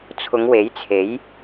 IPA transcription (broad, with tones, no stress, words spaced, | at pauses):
t͡sʰʊ˨˧ŋwe˨˥jt͡sʰe˨˥j